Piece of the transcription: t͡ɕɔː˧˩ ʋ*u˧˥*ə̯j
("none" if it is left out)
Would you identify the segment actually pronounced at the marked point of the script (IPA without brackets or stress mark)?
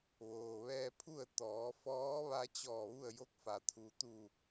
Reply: u˥˨